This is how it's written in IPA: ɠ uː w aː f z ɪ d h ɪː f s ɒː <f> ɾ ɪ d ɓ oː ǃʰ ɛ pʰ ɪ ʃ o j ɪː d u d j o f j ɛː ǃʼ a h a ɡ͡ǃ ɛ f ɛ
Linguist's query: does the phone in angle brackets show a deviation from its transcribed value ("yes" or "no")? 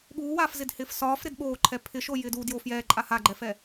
no